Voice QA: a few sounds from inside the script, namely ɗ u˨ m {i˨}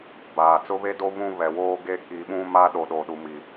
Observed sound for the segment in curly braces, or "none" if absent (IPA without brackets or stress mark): i˨